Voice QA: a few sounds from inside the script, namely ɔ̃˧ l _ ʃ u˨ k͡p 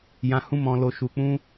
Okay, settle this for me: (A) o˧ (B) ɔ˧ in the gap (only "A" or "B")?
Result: A